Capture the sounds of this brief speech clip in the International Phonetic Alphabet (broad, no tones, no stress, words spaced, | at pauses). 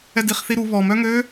ɛdiχθiɾu βɔm œŋø